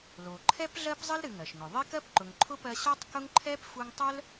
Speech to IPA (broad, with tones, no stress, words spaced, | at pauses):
lo˩ ǃʰɛ˥pɮɜ˥p zˤɨ˥lɾɨ˨ŋɜ˩ʃŋʊ˩ ðˤe˥kɜ˥pǃʊ˨ŋ ǃʰʊ˥pɜ˦ ɕɔ˥tˤkʊ˥ŋ ǃʰɛ˥pfu˦ŋ tˤœ˥l